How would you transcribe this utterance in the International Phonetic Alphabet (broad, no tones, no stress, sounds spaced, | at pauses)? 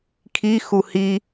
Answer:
kʰ i x u h i